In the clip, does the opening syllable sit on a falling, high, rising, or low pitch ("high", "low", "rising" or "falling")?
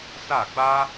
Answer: falling